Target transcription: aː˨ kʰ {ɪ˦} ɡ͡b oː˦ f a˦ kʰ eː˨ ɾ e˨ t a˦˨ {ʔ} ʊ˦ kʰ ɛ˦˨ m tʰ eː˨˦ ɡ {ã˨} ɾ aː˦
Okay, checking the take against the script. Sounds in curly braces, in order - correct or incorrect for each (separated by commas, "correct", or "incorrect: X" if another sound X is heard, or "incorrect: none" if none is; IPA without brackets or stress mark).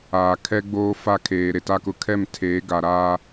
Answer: incorrect: ɛ˦, incorrect: k, incorrect: a˨